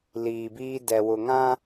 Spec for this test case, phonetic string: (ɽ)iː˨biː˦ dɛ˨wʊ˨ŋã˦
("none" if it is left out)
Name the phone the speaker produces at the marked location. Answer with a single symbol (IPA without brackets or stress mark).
l